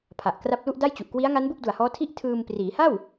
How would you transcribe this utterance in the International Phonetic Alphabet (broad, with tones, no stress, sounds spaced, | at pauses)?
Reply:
pʰ a˨˩ ʔ k r a˥˩ p̚ l u˥˩ ʔ d a˥˩ j t͡ɕ u˨˩ ʔ k w i˦˥ a̯ ŋ a˦˥ n b u˥˩ k̚ d u˨˩ a̯ h ɔː˦˥ tʰ i˥˩ ʔ tʰ ɯː˧ m p r iː˩˦ h a˥˩ w